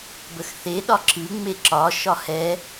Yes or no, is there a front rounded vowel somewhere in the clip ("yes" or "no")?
no